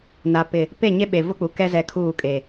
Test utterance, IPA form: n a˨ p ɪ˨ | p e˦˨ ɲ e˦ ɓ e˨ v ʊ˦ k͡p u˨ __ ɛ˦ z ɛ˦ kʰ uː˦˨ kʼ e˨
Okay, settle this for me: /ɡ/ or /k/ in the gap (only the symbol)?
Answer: k